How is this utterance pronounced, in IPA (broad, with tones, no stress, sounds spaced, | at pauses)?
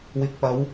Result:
w ɪ˨ k̚ p ɐ˨˧ w